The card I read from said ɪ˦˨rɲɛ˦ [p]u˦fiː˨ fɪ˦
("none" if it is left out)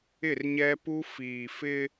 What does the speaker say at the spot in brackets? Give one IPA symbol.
p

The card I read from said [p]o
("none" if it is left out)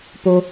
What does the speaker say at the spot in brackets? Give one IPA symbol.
p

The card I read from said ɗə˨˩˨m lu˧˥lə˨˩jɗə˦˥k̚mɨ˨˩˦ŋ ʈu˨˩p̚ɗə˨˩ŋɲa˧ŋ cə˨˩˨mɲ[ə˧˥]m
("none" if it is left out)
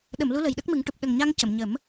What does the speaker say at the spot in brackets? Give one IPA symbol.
ə˨˩˦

